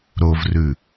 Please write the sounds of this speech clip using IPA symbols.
ɾ o v r ʉ

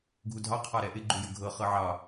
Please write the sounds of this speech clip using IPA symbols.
ɡʱ u dʱ ɑ qʰ ɑ ɾ ɛ ʔ ɪ ɡ͡ǃ u j ə ɡʱ ɤ χ ɤ ʕ ɑ

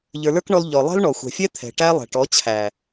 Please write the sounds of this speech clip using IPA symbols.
ʎ ə˞˨ l ə˞˦ k ɳ ɔ˧ l ʎ ɔ˨ lˠ ɛ̤˦ l ɳ ɔ˨ xʷ ɛ̤˨ fʲ ɛ˦ t̪ʰ ɛ̤˨ ʈ æ˦ lˠ ɛ̤˨ ʈ ɔ˨˦ t͡ɕʰ æ˨

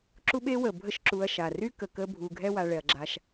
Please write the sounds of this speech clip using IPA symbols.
ǁ u˦ ɓ e˦ w ə˩ bʱ ə˦ ʃ ǁ u˨ ɐ̯ ʃ a˩ r y˥ k ə˨ k ə˦ bʱ u˨ ɡʱ ɛ˦ w a˨ ɭ ɛ˩ ɐ̯ ɡ͡ǁ a˨ ʃ

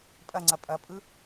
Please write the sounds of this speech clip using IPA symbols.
pʼ ɐ ŋ͡ǀ ɐ pʼ ɐ pʼ ɯ

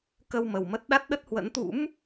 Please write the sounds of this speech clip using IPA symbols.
k ə˧ w m ə˨˩ w m ə˦˥ t̚ ɗ a˦˥ t̚ ɗ ə˦˥ t̚ h w ə̰˧˥ n t̪ ṵ˧˥ m

